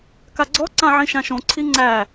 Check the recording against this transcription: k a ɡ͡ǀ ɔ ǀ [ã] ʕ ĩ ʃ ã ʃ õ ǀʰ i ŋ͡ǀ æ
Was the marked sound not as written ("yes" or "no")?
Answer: no